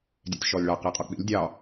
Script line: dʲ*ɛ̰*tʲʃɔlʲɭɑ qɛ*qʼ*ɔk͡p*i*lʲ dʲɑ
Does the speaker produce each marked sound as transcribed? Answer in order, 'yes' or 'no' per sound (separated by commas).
yes, yes, no